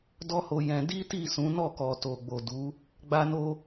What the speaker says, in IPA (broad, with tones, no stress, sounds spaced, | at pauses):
d ɔ˦ h o˧ j ɛ̃˧ d i˦ t i˦˨ s ũ˨˦ n ɔ˦˨ k ɔ˨ t o˨ ɡ͡b o˨ d u˨˦ | ɡ͡b a˦ n o˦